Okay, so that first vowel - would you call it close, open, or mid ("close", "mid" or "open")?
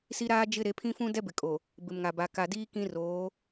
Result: close